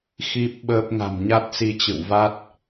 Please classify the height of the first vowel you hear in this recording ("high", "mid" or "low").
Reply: high